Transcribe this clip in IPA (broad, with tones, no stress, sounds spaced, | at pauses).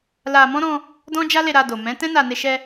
l a˧ m ɔ̃˦ ɾ ɔ̃˧ | d ɔ̃˦ d͡ʒ a˦ l e˧ ɾ a˧ d o˨ m ɛ̃˨˦ t ɛ̃˦ n a˧ n e˧ ʃ ɛ˧